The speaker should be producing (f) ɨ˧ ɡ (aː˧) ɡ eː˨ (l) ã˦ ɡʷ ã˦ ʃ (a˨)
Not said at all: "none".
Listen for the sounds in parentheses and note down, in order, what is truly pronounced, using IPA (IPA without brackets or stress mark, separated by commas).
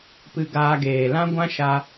p, aː˧, l, a˧